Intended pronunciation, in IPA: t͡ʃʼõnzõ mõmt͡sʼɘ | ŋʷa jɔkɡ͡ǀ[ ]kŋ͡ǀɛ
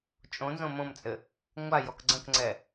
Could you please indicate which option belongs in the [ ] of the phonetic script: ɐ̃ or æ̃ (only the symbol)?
ɐ̃